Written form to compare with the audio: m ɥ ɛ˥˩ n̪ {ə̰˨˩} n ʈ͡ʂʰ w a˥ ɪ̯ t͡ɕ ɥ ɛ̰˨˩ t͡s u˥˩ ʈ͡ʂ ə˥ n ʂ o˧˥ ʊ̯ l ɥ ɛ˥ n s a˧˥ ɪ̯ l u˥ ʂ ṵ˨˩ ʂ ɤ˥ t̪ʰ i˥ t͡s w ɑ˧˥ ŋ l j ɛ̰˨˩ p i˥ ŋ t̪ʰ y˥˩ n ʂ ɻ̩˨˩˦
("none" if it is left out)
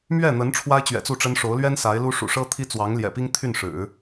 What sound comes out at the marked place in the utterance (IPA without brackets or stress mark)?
ə˧˥